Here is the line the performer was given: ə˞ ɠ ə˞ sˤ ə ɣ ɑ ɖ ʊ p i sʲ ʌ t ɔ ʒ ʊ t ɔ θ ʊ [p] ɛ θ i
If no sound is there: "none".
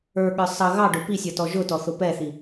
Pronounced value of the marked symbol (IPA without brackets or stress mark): p